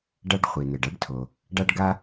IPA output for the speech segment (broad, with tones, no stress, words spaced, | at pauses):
ɖa˥ɖ χʷi˩n̪ɛ˩ɖa˥ɖtʰo˩ | ɖa˥ɖɡa˥